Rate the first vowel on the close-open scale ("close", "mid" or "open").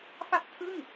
open